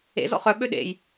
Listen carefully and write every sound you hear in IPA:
ḛzɔ̰ χœɓø ɗḛj

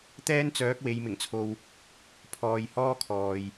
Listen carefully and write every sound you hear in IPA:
t̪ɛː˥nt͡sœː˨˥k̚ we˨˧jmɪ˨˩ŋt͡sʰo˧w | pʰɔː˨jhɔː˥ kʰɔː˨j

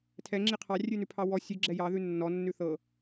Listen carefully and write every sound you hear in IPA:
tʰɛŋ͡ǁi qʰɑrʲʉnʉpʰɑ wɔ sʲʉɡ͡ǁɛ jɑðʉ nːɔnːʉ θɤ

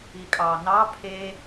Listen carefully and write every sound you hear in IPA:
ikʼɑ nɑ pʰe

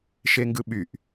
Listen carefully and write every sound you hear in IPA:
ʃeŋɡɯɓyʔ

